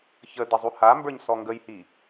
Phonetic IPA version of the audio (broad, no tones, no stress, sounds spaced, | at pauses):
ç ə d ə zˤ u h a m b ə˞ ɲ s ɔ ŋ ɡ ə j h i